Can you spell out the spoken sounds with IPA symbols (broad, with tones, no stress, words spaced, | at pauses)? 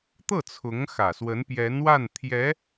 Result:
t̪ɤ˥˩ t͡sʰʊ˧˥ŋxä˨˩ swə˧˥npjɛ˧˥nwa˥˩n t̪ʰjɛ˧˥